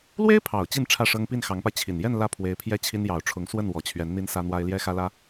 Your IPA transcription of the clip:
l w e˥ ɪ̯ pʰ ɑ˨˩ ʊ̯ t͡ɕ i˥˧ n ʈ͡ʂʰ ä˥˩ ʂ ɤ˥ ŋ p i˥˩ n x ɑ˧˥ ŋ p a˧ ɪ̯ t͡ɕʰ i˨˩ n j ɛ˥˧ n l ä˥˩ pʰ w e˧˥ ɪ̯ pʰ j ɛ˥˩ t͡ɕʰ i˥ n j ɑ˨˩ ʊ̯ ʈ͡ʂʰ ʊ˧˥ ŋ s w ə˥˩ n w ɔ˨˩ t͡ɕʰ ɥ ɛ˧˥ n n̪ i˥ n s ä˥ n̪ w a˥ ɪ̯ l j ɛ˥ x ä˥ l ä˥

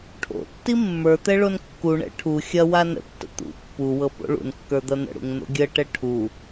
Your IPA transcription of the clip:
ʈʰ o̰ tː i mː ə˞ t̪ ɛ ɭ o n kː u ɳ ɛ̰ ʈʰ u xʲ ɐ w a n ə̰ tː ə̰ t̪ ṵ pː u w ɤ p o̰ ɭ ṵ n kː ə˞ d̪ ɐ n̪ ə̰ ɽ ṵ ŋ n̪ o̰ ɡʲ ə ʈ ɛ ʈʰ u

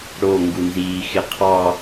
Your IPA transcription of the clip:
ɽ o ŋ ɡ u n z iː x ɪ qʰ ɑ

